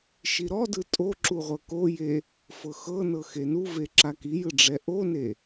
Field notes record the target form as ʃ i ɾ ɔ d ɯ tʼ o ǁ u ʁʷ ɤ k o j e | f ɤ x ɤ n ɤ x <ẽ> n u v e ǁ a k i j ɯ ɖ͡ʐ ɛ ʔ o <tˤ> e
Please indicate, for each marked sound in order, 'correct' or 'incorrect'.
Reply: incorrect: e, incorrect: n

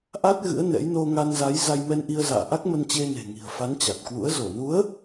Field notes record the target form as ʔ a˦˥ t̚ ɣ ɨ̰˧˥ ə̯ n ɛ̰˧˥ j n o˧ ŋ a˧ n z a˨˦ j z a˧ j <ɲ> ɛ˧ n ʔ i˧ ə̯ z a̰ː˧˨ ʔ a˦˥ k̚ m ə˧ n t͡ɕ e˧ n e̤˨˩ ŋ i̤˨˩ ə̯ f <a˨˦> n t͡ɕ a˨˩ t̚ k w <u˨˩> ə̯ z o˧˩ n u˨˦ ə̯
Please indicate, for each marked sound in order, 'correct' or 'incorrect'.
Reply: incorrect: m, correct, incorrect: ṵ˧˥

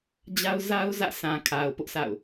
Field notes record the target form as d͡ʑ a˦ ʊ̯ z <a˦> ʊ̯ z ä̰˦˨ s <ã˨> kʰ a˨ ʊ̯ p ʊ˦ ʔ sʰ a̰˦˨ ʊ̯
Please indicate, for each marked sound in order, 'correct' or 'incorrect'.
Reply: correct, correct

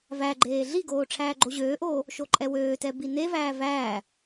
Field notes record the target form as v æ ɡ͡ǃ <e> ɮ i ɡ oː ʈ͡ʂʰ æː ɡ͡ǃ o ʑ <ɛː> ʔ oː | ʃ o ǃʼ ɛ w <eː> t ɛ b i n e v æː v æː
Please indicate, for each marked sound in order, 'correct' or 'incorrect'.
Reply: incorrect: eː, incorrect: øː, incorrect: øː

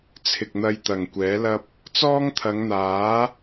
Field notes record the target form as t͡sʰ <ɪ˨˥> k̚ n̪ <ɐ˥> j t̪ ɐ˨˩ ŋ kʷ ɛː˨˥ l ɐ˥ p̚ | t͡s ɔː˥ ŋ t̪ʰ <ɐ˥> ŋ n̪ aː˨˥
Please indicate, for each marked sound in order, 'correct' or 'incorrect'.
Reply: incorrect: ɪ˨, incorrect: ɐ˧, incorrect: ɐ˨˧

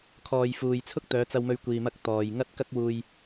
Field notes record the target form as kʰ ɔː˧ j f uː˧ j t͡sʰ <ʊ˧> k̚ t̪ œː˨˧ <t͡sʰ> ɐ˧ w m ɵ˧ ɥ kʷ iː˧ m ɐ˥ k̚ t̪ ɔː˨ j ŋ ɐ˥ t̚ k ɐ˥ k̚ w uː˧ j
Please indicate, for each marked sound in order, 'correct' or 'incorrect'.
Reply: incorrect: ʊ˥, incorrect: t͡s

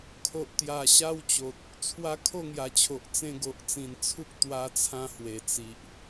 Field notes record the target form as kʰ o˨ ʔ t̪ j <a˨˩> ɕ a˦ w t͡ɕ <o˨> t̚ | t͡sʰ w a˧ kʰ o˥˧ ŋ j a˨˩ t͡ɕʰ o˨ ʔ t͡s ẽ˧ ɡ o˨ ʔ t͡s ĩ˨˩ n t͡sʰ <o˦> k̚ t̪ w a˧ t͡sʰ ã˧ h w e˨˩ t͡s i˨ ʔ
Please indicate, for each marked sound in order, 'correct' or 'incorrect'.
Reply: correct, correct, incorrect: u˦

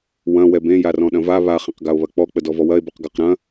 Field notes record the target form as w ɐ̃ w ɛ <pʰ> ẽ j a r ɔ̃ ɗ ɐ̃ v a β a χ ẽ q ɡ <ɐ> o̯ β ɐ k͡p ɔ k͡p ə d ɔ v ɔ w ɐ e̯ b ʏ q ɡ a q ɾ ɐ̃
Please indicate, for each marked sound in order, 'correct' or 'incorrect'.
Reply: incorrect: b, incorrect: a

